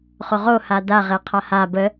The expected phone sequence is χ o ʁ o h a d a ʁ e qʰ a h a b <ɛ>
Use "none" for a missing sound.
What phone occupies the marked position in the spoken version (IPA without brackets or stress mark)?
ə